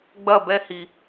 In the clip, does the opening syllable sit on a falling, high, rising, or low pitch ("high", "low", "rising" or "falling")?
falling